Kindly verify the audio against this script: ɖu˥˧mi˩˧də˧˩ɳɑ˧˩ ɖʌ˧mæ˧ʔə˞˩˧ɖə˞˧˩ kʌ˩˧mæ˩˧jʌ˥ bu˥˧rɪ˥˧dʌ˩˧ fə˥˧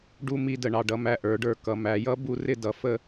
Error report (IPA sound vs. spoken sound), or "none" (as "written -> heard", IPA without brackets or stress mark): i˩˧ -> i˥˧